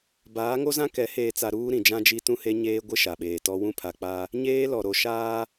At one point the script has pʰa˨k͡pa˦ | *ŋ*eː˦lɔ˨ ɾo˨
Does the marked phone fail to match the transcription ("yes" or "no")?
yes